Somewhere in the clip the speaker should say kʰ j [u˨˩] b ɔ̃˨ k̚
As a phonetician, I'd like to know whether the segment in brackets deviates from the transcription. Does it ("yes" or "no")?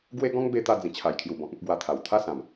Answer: no